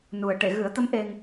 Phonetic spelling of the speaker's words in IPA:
n u˨˩ ə̯ ʈ e˨˩˨ ɣ ɨ˨˩˦ ə̯ t̪ ə˧˥ m ʔ e˧ ŋ

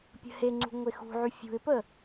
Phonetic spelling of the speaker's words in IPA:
pʲ ə̤ h e ŋ͡ǀ ṳ ŋʷ e x ṳ ʕ y fʲ ṳ ɪ̯ p ə

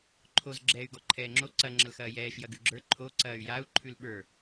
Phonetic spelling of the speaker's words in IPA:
ǃʰ o z ɡ͡ǁ ɛː y̯ ɡ ɔ ǃʰ ɛː ŋ͡ǁ o ǀ ɐ ŋ͡ǁ ɐ l x ɐː j ɛː ʃ j ɐ ɡ ʉ ɡ͡ǁ ə˞ ǃʰ o ǀ ɐː y̯ j a u̯ ǃʰ ʉ l ɓ ə˞

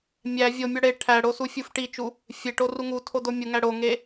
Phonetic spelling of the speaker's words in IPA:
mʲ æ vʲ o mʲ ɒ ɽ e ʈʰ æ ɽ o s u fʲ u f ʈ i t͡ʃ u | fʲ e ʈ o r u ŋ u tʰ o d o mʲ u ŋ æ ɽ o ŋ e

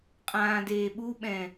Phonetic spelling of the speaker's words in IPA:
qʼ ãː d eː ɓ u ɓ ɛ̃

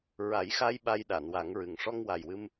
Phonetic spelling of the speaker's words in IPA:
ɹ a˨˩˦ j x a˧ j ɓ a˧ j ɗ a˨˩˨ n w a˨˩˦ ŋ ɹ ɨ˨˩ ŋ ʂ ɔ˧ ŋ w a˨˩ j w ɨ˧ m

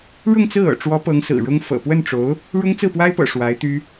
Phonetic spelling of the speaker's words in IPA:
ɻ ʊ˥˧ ŋ t͡s ɹ̩˥˩ ɤ̰˨˩ ʈ͡ʂ w ɔ˧˥ p ɤ˧˥ ŋ s ɹ̩˨˩ ɻ ʊ˥ ŋ f ɤ̰˨˩ p w ə˥˩ n ʈ͡ʂ o˧˥ ʊ̯ | ɻ ʊ˥ ŋ t͡s ɹ̩˥˩ p w a˥ ɪ̯ p ɤ̰˨˩ ʂ w a˧˥ ɪ̯ t̪ y˥

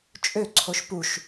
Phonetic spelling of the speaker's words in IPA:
t͡ʃʼ ø ǀʰ o ʃ p u ʃ

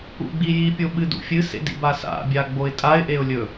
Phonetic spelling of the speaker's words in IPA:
ṵ ɡ͡b i j i pʲ o ɓ ɨ d ṵ fʲ ɨ s ḛ d ḭ b a s a̰ bʲ a ɡ͡b o ɪ̯ tʼ a ɪ̯ ʔ e ʊ̯ lʲ ɵ

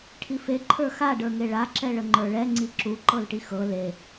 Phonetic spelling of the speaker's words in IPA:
ʈʰ i f e ǃʰ ə˞ x a ɖ ə˞ ŋ e ɭ a ǁ ɛ ɭ ə ŋ͡ǃ ə˞ ɭ ɛ ŋ͡ǀ i ǁ u ǃ ɤ l ʈ i x ɤ l e

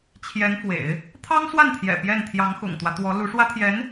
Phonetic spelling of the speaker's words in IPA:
t͡ɕʰ j ɛ˧˥ n f w ḛ˨˩˦ ɪ̯ | t̪ʰ ɑ˥ ŋ s w a˥˩ n t̪ʰ j ɛ̰˨˩ p j ɛ˥˩ n t̪ʰ j ɑ˧˥ ŋ x ʊ̰˨˩ ŋ t̪ w ä˦ t̪ w ɔ˧˥ l u˧˥ ʂ w ä˥ t̪ʰ j ɛ˧˥ n

